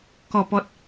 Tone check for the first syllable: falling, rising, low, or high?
low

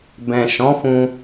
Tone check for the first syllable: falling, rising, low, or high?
low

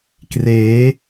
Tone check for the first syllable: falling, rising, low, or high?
rising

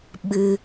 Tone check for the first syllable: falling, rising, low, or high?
low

